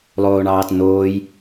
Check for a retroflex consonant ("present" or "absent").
present